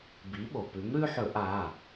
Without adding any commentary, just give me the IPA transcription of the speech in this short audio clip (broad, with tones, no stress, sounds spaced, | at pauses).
b i˩˥ ɓ o˩ p ʉ˩˥ m ɾ ʉ˦ ħ ɵ˧˩˧ ʔ a˩˧˩